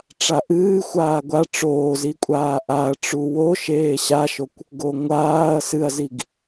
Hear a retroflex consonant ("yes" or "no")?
yes